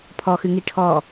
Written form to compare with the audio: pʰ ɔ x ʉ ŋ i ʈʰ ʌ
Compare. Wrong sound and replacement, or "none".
ʌ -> ɔ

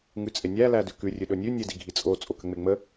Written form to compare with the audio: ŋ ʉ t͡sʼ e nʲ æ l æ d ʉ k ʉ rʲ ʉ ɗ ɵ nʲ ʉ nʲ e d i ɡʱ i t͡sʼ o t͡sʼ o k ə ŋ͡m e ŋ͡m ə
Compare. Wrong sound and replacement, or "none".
none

